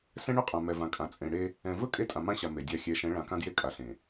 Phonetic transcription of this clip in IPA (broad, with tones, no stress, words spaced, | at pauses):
sɛ̃˦ɳɵ˦qʼã˨ mɛ˨vã˨kʼã˨ t͡sʼẽ˨ɽe˦ | ɛ̃˨vɵ˦ kʼe˦tʼã˨mã˦ɕa˨ me˨dʲa˦˨ xʲɛ˨˦ʃɛ̃˨˦ɭã˨ kã˦dje˦kʼa˨ ɬẽ˨